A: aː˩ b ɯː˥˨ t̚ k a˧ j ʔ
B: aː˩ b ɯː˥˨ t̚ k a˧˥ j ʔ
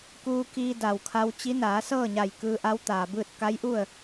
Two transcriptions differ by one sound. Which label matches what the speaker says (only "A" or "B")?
B